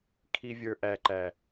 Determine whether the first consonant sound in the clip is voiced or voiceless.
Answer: voiceless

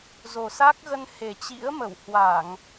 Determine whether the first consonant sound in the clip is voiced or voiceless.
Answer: voiced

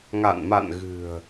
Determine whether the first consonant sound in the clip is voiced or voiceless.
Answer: voiced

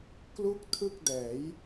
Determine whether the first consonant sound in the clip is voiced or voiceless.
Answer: voiceless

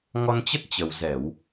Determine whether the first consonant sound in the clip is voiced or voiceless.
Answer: voiced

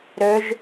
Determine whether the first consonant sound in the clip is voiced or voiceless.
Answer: voiced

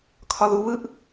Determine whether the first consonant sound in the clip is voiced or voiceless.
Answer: voiceless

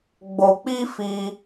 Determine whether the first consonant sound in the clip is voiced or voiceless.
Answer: voiced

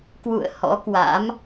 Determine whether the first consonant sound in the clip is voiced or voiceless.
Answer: voiceless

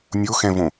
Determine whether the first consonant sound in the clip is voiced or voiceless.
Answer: voiced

